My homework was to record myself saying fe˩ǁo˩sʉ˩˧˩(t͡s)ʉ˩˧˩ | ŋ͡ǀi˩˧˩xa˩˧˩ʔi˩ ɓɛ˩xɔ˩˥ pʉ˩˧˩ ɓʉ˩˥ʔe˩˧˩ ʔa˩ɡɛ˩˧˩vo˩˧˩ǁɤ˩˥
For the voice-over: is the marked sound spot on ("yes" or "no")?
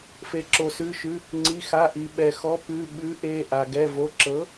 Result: no